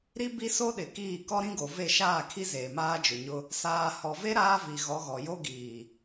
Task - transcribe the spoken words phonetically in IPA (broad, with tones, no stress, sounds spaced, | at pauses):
ɾ i˦ b i˦ s o˦ ɗ ɪ˨ k iː˦˨ k ɔ˦ ɾ ĩ˦ ɡ o˨ v e˦˨ ʃ aː˦˨ kʰ i˦ z eː˨ m aː˦ d͡ʒ ʊ˨ ɲ ʊ˦ | s aː˨ h ɔ˨ v e˦ ɾ aː˦ v i˨ ɣ ɔ˨˦ ɣ ɔ˨ j o˦ ɡ iː˨